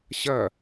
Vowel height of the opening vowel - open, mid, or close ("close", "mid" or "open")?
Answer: open